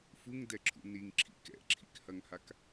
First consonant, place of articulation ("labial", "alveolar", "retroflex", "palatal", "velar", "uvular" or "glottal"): labial